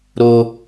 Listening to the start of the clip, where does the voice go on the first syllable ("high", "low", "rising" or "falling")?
high